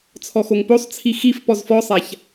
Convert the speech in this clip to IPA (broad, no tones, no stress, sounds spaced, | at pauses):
t͡sʰ ɔ x o ŋ p o sˤ t͡sʰ i x i f p ɔ z f ɔ sˤ a ç